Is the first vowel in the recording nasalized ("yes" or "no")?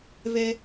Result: no